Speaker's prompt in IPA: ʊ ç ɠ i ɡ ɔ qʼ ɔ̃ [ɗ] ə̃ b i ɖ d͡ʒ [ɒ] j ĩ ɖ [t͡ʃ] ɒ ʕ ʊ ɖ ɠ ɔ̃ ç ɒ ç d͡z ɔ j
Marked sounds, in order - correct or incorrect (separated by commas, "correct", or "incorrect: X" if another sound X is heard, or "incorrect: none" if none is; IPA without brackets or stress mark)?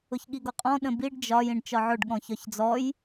correct, correct, correct